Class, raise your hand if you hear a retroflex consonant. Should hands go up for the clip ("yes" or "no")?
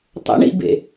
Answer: yes